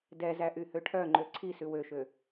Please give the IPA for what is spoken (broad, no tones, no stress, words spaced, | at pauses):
dɛzæ ʔyhøʈʰœŋ͡ǃø ǀʰisʉ wøʃø